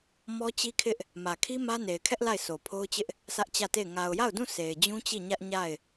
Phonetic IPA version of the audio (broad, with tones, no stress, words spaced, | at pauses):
mɔ˦t͡ɕi˦kʰɪ˦ʔ | mä˨kʰi˦ mä˦ ne˨ɪ̯kʰɛ˦ʔ la˦˨ɪ̯sʰo˨pʰo˦ʊ̯t͡ɕɪ˦ʔ | sʰä˦ʔt͡ɕä˦˨te˦˨ɪ̯ ŋa˨ʊ̯ja˦˨ʊ̯dũ˦˨ sʰe˨ɪ̯d͡ʑũ˦ t͡ɕi˦˨ɲä˦ʔ ɲa˦˨ɪ̯